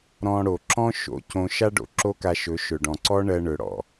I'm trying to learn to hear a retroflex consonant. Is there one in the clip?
yes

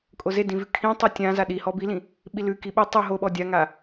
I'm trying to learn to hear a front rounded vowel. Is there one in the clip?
no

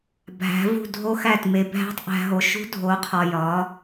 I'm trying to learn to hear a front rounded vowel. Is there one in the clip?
no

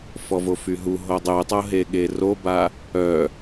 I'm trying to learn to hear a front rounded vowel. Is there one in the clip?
yes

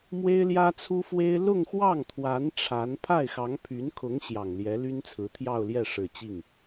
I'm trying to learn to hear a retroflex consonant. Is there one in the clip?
yes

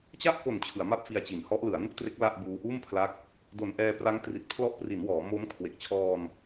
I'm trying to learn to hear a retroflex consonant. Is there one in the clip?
no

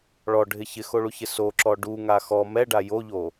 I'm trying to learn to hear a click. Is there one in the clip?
yes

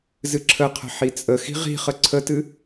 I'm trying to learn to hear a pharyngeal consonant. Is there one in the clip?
yes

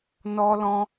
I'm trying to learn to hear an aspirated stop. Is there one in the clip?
no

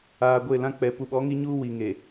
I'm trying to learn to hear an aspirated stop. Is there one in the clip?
no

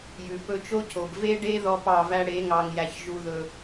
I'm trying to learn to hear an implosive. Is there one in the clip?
no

